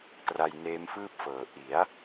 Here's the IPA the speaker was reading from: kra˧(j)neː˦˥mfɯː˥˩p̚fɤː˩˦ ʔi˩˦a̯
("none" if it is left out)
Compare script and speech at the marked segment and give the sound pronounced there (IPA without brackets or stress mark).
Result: j